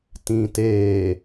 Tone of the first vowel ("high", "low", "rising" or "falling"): low